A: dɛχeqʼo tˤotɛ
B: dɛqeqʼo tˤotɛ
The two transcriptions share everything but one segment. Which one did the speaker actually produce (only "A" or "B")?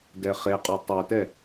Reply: A